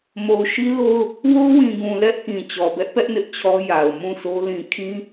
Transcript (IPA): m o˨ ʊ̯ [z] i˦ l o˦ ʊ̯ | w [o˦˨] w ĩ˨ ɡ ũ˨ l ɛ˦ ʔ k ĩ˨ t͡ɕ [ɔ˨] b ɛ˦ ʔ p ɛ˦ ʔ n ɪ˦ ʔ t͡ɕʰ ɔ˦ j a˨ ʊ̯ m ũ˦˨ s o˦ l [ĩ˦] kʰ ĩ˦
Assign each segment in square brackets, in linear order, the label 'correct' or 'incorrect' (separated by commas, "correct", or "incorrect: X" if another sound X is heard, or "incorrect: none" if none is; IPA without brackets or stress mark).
incorrect: ʃ, incorrect: o˦, correct, incorrect: ĩ˨